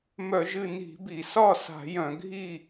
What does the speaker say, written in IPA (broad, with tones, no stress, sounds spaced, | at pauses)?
m œ˧˩˧ ʒ ɨ˥˨ n i̤˧˩˧ b i˩ s ɒ˥˨ s a̤˧˩˧ j œ̃˧˩˧ ɡʱ i˥˨